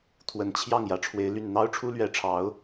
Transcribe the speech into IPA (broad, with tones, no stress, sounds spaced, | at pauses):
t̪ʰ w ə˨˩ n t͡ɕʰ j ɑ˥˩ ŋ j ä˨˩ ʈ͡ʂʰ w e˧˥ ɪ̯ l y˥˩ n n̪ ɑ˥ ʊ̯ ʈ͡ʂʰ u˥ l ɥ ɛ˧˥ ʈ͡ʂʰ ɑ˧˥ ʊ̯